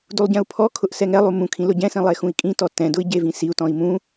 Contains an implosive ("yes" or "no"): no